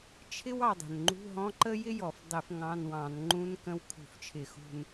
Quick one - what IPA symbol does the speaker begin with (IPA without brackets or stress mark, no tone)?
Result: t͡ʃʰ